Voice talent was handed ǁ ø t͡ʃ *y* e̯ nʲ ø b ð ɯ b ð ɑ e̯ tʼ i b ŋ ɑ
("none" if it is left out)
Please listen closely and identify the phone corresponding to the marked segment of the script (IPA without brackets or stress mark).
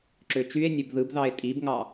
y